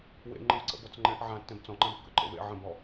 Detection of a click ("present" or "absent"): present